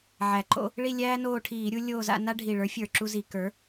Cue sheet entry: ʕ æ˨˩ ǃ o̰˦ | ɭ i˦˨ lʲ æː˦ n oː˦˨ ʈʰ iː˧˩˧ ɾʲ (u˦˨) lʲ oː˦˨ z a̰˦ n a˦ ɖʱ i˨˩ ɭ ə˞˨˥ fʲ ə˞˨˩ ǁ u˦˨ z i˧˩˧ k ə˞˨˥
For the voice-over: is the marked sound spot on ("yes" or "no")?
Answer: no